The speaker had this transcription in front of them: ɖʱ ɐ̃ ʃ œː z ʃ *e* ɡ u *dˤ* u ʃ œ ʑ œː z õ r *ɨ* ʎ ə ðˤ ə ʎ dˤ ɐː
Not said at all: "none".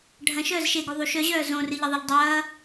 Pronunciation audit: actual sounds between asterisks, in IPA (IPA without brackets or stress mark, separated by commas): e, ðˤ, ɨ